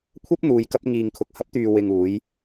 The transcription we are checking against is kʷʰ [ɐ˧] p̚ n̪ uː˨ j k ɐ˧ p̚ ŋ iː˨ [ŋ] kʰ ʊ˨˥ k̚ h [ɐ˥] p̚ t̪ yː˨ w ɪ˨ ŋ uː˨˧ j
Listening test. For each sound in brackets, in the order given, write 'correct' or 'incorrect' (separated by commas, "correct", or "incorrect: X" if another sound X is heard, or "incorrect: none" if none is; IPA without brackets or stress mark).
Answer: incorrect: ɐ˥, correct, incorrect: ɐ˨˥